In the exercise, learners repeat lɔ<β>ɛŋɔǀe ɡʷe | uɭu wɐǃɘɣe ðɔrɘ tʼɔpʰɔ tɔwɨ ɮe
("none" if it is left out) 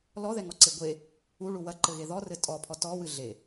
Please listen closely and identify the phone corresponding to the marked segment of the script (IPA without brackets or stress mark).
ð